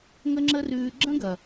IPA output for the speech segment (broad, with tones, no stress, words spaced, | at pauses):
ŋə˦ŋ͡ǁə˦rʉː˧ ɡ͡ǁə̃˦ɡɐ˨